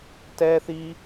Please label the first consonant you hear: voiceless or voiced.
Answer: voiceless